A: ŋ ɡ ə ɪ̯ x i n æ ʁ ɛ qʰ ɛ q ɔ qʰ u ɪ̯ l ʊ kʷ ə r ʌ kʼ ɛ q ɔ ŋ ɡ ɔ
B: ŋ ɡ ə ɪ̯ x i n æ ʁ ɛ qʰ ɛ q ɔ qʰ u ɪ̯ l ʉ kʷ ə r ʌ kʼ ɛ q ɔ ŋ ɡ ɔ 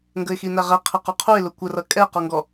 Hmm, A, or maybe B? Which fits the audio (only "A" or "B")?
A